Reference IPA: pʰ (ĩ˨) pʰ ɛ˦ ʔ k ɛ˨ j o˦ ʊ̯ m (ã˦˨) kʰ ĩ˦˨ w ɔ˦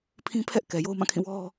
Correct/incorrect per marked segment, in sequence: incorrect: ĩ˦, correct

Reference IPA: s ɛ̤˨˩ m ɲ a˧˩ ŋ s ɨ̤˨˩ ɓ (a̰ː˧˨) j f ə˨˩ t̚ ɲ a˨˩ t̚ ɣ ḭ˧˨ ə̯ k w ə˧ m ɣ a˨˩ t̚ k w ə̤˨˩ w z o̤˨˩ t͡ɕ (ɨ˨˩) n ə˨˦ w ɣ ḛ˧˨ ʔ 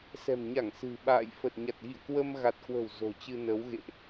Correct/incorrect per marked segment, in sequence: correct, incorrect: ɨ˧

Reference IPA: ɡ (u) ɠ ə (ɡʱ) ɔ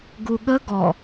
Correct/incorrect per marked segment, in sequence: correct, incorrect: ɡ

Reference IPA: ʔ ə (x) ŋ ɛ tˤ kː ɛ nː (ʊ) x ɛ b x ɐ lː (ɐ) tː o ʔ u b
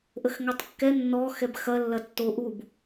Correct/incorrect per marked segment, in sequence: correct, incorrect: ɔ, correct

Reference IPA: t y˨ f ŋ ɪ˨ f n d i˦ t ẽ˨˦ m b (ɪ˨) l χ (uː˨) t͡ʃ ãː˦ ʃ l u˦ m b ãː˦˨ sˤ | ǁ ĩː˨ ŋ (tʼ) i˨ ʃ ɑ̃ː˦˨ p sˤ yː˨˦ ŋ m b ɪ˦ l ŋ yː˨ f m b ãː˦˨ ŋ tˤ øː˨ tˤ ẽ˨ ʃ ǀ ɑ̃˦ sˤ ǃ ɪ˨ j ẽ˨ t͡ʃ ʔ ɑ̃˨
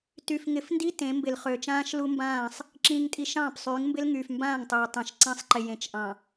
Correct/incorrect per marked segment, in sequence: correct, incorrect: øː˨, correct

